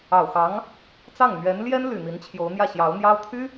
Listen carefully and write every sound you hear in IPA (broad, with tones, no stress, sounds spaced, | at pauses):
ɑ˨˩ ʊ̯ x ɑ˧˥ ŋ | t͡s ɑ˥˩ ŋ n̪ ɥ ɛ˧˥ n l j ɛ˥ n l y˨˩ n̪ i˧˥ n t͡ɕʰ j o˧˥ ʊ̯ n̪ j ä˥˩ ɕ j ɑ˧˥ ʊ̯ n̪ j ɑ˥ ʊ̯ t̪ʰ y˥